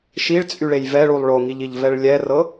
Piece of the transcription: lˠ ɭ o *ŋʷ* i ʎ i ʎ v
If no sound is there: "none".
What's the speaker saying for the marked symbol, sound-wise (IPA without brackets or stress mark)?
ŋ